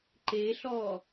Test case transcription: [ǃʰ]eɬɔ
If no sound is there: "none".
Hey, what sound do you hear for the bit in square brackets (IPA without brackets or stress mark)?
ǃ